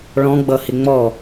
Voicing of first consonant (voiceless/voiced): voiced